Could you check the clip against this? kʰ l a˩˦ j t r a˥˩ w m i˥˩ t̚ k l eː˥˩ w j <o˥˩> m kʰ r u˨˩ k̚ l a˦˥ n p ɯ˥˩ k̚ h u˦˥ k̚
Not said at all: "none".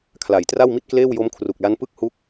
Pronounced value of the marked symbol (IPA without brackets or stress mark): o˦˥